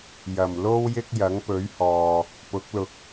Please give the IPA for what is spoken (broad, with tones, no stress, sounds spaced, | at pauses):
j ɐ˨˩ m l o˥ w j ɪ˥ k̚ j ɐ˨˥ ŋ p ɵ˨˥ ɥ h ɔː˨ | p ʊ˨˥ k̚ l ʊ˨˥ k̚